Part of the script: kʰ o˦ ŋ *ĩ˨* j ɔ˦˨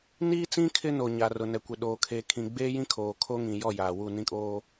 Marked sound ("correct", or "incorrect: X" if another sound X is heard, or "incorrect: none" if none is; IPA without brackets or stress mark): correct